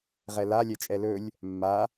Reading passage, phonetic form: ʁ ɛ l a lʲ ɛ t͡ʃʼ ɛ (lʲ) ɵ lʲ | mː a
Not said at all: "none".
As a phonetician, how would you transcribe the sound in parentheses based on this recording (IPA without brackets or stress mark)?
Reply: l